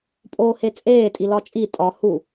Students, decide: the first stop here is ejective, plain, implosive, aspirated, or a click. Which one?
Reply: ejective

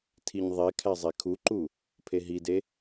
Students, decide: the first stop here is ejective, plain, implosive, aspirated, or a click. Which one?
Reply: aspirated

